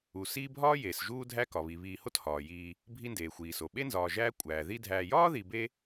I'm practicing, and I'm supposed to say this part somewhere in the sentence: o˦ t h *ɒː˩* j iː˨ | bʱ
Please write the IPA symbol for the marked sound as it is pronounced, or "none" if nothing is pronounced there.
ɒː˩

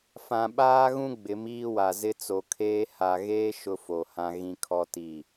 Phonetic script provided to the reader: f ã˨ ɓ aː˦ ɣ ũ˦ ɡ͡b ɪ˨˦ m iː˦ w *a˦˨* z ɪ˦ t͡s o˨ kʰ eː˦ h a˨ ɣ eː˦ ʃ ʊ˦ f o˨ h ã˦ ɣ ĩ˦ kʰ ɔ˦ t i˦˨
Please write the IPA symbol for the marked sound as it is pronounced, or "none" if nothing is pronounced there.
a˨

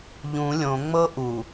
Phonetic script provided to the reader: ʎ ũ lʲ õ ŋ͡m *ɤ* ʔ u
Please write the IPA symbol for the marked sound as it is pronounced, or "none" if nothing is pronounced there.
ɤ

